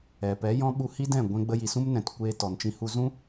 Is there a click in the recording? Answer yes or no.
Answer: no